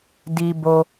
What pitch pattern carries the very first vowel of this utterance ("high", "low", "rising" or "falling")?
high